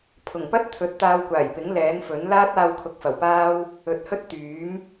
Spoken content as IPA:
pʰ ʊ˨˩ ŋ p ɐ˥ t̚ t̪ʰ ɵ˨˥ t̚ t̪ aː˧ w kʷ aː˨˩ j p ɪ˨˥ ŋ l ɛː˨˥ n f ɵ˨˥ n l aː˥ t̚ aː˧ w kʰ ʊ˨˥ k̚ f ɐ˨˩ w p aː˥ w | ɵ˨ t̚ h ɵ˥ t̚ t̪ yː˨˥ m

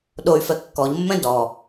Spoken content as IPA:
ɗ o y̯ f ɛ kː ɔ ʎ mː ɛ̃ d ɔ

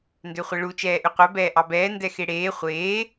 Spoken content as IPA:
n d ø χʷ ɛ ɭ u t͡ʃ ɛː ʔ ʉ qʷ ɛ b ɛː ʔ ɑ b ɛː n d ɛ x e ɽ eː χʷ eː

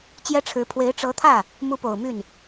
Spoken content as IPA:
t͡ɕ j ɛ˥ ʈ͡ʂʰ ɻ̩˧˥ pʰ w e˧˥ ɪ̯ ʈ͡ʂ ɤ˧˥ t̪ʰ ä˥˩ | m u˧˥ p o˨˩ ʊ̯ m y˥˩ n

